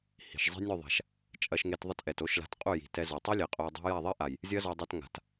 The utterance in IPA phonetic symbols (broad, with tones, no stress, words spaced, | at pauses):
hi̤˨ʃzˤi̤˦ nʲo˦˨ðˤa̤˨ʃ | t͡ʃʼɐ˧ʃŋe˧t ðˤɐ˦tʔɛ˨to˦ʃla̤˧t qʼu˦˨ji̤˨tɛ˧ zo˨tˤi˦lʲe˨ qʼo˧jdˤa̤˦ ja˦˨ðˤi˦ʔa˨j | zʲɐ˦zɔ˧dˤɐ˧t ŋa̤˨t